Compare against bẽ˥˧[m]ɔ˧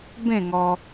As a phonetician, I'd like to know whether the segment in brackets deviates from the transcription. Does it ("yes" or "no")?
yes